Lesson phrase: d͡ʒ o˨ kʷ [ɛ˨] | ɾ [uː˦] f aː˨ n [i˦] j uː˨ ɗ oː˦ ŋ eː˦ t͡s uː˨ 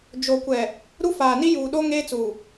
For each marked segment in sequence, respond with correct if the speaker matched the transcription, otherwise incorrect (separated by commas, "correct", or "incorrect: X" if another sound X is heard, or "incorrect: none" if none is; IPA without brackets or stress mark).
correct, incorrect: u˦, correct